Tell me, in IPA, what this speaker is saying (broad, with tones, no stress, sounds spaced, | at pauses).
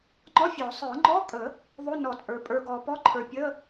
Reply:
ŋ͡ǃ ɔ˧˥˧ fʲ ɔ˨˩˦ sˤ ə˞˨˩˦ ŋ͡ǃ ɔ˧˥˧ kʼ ə˨˩˦ | ðˤ o˧˥˧ n ɔ˨˩˦ t͡sʼ ə˞˨ pʼ ə˞˨ ɡ ɔ˨ p ɔ˧˥˧ ǃʰ ə˞˨ pʲ ə˧˥˧